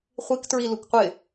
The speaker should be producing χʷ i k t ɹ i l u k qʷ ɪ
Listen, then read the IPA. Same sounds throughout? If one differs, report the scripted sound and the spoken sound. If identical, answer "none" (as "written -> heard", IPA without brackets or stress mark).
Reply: none